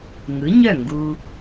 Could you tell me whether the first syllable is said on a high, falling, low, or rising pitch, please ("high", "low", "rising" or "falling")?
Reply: rising